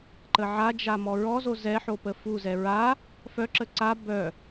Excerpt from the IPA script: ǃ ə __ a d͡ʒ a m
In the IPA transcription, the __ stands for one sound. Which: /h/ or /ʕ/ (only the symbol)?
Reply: ʕ